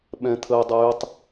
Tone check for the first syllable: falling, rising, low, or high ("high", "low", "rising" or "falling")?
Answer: low